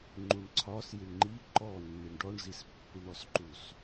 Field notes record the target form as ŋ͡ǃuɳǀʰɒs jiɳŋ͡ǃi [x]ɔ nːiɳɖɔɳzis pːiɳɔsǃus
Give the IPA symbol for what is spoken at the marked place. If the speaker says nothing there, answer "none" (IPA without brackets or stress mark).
ǃ